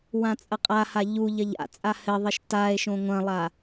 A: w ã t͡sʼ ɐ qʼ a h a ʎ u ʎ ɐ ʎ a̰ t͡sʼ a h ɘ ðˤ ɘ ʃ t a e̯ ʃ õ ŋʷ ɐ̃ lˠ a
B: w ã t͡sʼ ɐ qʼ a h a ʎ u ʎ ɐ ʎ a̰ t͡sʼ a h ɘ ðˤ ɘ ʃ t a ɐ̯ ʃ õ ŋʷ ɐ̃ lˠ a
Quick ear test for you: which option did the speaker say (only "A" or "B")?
A